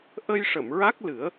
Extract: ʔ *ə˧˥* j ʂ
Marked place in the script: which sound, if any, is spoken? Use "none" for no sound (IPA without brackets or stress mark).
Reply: ə˧